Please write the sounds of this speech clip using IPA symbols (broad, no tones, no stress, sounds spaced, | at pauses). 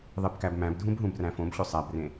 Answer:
ðˤ e b k æ b m æ̃ b dʱ ũ b ɦ ũ b r æ̃ f õ b ɕ ʏ sˤ æ b r ẽ